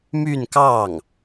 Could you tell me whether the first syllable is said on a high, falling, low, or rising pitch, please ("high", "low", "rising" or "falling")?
falling